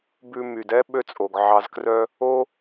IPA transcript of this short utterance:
bʉ˧ my˩dɛ˥ ɓø˧t͡sʼo˩ɡ ʕɑ˧zkrœ˥ | o˥

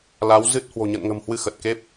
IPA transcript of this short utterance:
la˨˦w zɨ˦˥t̚ hwo̤˨˩ɲə̰˧˨nŋə̤˨˩mhwɨ˧ xə˨˩t̚ke˦˥p̚

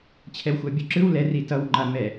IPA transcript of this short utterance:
t͡ɕʰɛwxʷabʲuǁɯw lɛ ritʌw ŋ͡ǃamɛ

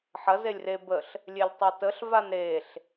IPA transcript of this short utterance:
ħɐ zelʲre bəɬ | lʲelʲtˤɛtəɬ vanɾeɬ

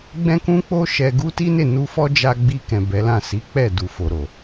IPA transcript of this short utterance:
ɡ͡bɛ̃˦kũ˦k͡po˦ ʃɛ˧ɡu˦ ti˦ne˦˨nu˧fɔ˦ d͡ʒa˧ ɡ͡bi˧kɛ̃˨ bɛ˨˦lã˦˨ si˨˦k͡pɛ˦˨ du˨fo˨ɾo˨

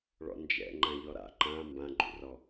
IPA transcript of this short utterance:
ɭɔ̰nd͡ʒɛ̰ ŋ͡ǃãʎɔɾa̰ ǃã mbãɡ͡ǃṵrɔ

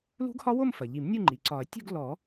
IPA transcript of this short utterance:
lṳ˦˥ɡhɒ˦˥wo˥˧m fɐ˩ʎi˨˩˦mnʲu˥˧ ŋ͡ǃi˩ǀɒ˨˩˦ɐ̯ tʲṳ˥˧ɡ lɔ˨˩˦

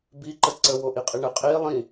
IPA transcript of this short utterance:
biǃə ǀəwoʔiqʼi ɳə qʼi lˠĩ

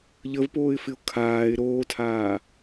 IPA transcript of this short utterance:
ʎəvpoːɪ̯fɪʊ̯ kʰaːɪ̯ ɾoːtʰaː

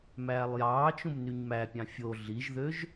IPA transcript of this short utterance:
mæːlˠjɑːt͡ʃũm nyɲmæpʲɑ̃ fʲo ɮiʒðøʒ

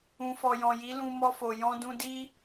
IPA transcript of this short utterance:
ũ˨fɔ˨jɔ̃˨ji˨˦ lũ˧mɔ˧fo˨ jɔ̃˧dũ˧di˦

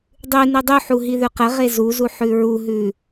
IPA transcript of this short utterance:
dˤʉ nʉdˤʉħu ɦiðʉqəʁe zuzu ħʉɹuɦʉ

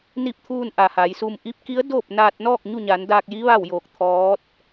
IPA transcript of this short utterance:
ni˥˨p̚ t̪ʰuː˧nʔa˩ ha˩˧jsu˧m ʔi˧˥p̚ki˧˥ə̯ doː˥˨p̚ naː˧t̚nɔː˥˨k̚ ɲu˥˨ɲa˩˧ndaː˧k̚ji˧˥ ʋa˥˨wjoː˧˩k̚ t̪ʰɔː˧˥t̚

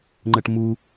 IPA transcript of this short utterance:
ŋ͡ǃəʈmu

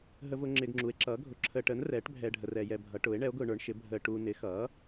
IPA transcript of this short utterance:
ɦə˧vʊ˧ ŋ͡ǁɪː˧ɡŋ͡ǁu˨˥e̯ǁʌː˨˥ ɡʱʊ˨˥ǁʰəː˧ʈəː˨˥nrɛː˨˥ʈ bʱɛː˧ɖʱə˧ rɛ˧ jɛ˧bʱʌ˨˥ ʈʊː˨˥e̯ ɳɛ˨˥o̯ɡʊː˧ɳə˞˨˥ɳʃɪ˨˥ bʱəː˧ʈuː˧ nɪ˨˥xʌː˨˥

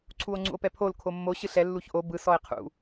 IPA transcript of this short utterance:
ǀʰuo̯ŋ͡ǀṵo̯pɛpʰol kʰomːo ɕɯɬɛ lːuçʔo bɯ sɔe̯qʰṵ

